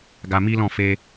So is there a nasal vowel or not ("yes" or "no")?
yes